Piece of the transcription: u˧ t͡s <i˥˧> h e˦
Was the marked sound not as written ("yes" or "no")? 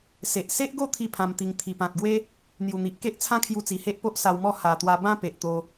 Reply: yes